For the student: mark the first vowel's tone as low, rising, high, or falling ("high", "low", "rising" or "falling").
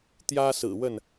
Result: high